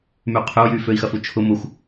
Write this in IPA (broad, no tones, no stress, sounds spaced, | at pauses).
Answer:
m y qʰ ʏ u̯ j y f ø i̯ x ɐ f u t͡ʃʰ ʊ m ʊ xʷ